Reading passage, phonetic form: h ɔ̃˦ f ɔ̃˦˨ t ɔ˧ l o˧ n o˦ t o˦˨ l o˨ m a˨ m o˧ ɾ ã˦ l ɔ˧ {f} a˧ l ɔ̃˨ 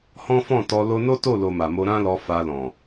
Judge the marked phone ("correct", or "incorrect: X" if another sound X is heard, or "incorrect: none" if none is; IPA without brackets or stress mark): correct